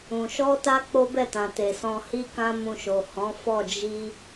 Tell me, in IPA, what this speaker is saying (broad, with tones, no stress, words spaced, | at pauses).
ũ˧ ʃɔ˦ta˦ k͡po˦bɛ˦˨tã˨te˨ sɔ̃˧hi˦ kã˦mũ˧ʃo˨ hɔ̃˨˦fɔ˦˨ d͡ʒi˧